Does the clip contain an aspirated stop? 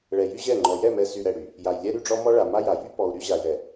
no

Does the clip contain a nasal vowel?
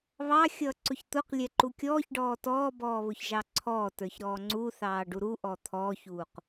no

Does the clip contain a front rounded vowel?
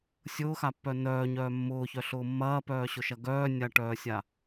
yes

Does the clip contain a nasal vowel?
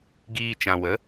yes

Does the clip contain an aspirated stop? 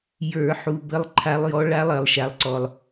yes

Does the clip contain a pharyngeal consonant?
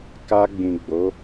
no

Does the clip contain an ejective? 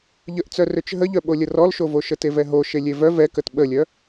no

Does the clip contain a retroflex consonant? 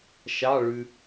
yes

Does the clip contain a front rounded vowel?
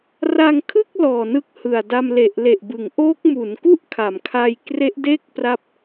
no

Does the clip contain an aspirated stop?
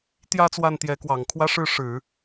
yes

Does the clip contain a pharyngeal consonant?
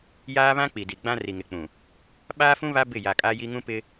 no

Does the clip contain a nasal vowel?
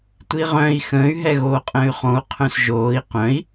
yes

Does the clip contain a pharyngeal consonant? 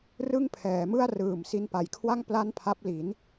no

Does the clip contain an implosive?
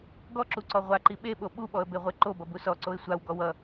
yes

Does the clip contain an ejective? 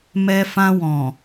no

